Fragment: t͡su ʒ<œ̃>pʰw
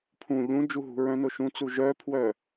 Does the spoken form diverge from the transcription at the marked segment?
yes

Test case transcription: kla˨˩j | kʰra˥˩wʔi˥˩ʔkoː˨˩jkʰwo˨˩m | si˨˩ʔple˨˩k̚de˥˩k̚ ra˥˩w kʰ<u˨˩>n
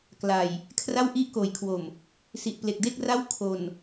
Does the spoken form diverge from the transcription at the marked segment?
yes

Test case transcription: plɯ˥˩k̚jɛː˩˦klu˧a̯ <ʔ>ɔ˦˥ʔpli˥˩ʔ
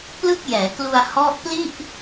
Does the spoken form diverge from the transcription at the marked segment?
yes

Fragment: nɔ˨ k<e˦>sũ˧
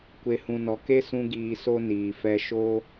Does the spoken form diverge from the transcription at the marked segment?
no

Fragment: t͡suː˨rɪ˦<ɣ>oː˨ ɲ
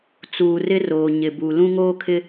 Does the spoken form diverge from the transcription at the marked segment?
yes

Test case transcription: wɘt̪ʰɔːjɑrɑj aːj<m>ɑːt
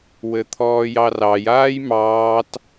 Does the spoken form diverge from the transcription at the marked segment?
no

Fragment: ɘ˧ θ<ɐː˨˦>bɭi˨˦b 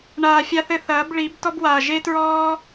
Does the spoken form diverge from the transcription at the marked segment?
no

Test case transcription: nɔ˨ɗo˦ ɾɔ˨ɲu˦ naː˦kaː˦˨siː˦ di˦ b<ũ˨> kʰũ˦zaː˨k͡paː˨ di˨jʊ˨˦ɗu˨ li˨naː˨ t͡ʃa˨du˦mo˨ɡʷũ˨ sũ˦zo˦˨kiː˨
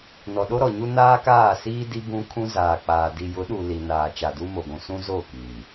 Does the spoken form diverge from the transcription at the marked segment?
yes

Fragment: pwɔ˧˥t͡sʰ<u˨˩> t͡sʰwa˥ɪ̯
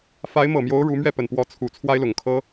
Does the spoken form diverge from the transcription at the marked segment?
no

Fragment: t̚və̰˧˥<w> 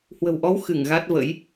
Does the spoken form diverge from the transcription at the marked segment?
yes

